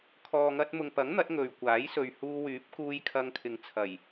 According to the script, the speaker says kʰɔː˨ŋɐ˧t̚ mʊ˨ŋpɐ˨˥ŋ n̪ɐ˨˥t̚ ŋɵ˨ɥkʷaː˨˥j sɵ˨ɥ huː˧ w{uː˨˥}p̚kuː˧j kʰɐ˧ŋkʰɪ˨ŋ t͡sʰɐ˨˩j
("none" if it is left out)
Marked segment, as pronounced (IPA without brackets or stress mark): yː˨˥